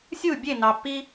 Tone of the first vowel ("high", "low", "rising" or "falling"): falling